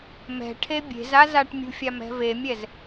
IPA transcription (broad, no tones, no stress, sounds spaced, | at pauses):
m ɛ̤ ʈʰ e bʲ e̤ z a z a ʈ mʲ ṳ fʲ a m ɛ̤ v e mʲ ɛ z